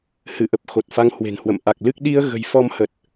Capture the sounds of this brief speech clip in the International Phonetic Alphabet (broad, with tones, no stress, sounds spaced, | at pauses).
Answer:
h ɨ˧˩ ʔ ə˨˩ p̚ x o˨˩ t̚ f a˨˦ ŋ h w e̤˨˩ n h w ə̰˧˨ m ʔ a˨˩ k̚ l ɨ˦˥ k̚ ɗ i˧ ə̯ ɣ ə̤˨˩ j f ɔ˧ m h ə˨˩ t̚